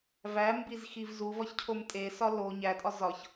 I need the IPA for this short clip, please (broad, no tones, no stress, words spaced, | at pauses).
væmbizxiv zuvɒçcʰom tʼesɒ lo ɲætʼɒ zɒç